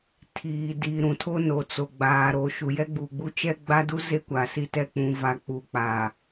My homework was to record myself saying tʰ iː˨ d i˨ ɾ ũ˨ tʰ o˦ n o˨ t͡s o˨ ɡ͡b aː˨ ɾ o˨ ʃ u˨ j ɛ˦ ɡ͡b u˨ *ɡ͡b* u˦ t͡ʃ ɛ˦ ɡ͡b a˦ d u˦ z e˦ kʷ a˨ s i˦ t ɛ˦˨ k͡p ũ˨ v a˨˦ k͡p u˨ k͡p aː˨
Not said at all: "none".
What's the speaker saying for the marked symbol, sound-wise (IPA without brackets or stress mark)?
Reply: ɡ͡b